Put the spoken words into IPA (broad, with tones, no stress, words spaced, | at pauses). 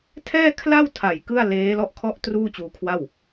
tʰɛː˥˩kʰla˥˩wtʰa˨˩j kɯ˥˩a̯ leː˦˥lɔ˦˥ʔ kʰɔ˦˥ʔ truː˥˩t͡ɕuː˧kʰwa˥˩w